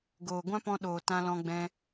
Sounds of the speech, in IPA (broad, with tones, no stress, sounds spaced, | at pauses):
ɡ oː˨ ɡʷ ã˦ p ɔ̃˧ ɗ oː˨ t ã˧ l ɔ̃˧ ɡ͡b ɛ̃˧